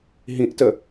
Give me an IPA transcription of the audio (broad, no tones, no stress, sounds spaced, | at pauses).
ɦ ĩ ʔ t ə